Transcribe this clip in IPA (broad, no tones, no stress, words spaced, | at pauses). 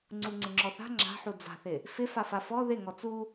ŋ͡ǀuŋ͡ǀɪŋ͡ǁɔθa̤ ŋ͡ǁa̤ħu d͡za̤θɪ | fɪ fafafɔ ðɪ ŋɔt͡su